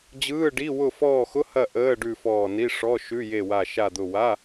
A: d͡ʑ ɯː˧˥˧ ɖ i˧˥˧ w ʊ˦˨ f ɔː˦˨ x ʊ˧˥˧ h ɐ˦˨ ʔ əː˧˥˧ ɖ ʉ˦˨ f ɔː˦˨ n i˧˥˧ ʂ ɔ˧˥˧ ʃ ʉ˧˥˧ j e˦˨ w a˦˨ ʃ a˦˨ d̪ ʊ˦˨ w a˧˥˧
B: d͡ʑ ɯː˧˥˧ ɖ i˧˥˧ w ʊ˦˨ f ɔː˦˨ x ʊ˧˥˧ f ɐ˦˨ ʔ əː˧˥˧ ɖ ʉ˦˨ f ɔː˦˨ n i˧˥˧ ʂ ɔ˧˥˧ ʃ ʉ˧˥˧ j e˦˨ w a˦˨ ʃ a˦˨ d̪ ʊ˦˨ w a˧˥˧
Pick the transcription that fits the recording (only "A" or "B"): A